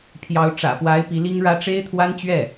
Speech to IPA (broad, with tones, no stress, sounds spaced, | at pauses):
pʰ j ɑ˧˥ ʊ̯ ʈ͡ʂ ä̰˨˩ p w a˧˥ ɪ̯ p i˧˥ l i˥ ŋ ɻ ä˥ ʈ͡ʂ e˥ ɪ̯ t̪ʰ w a˥ n t͡ɕ ɥ ɛ˥˩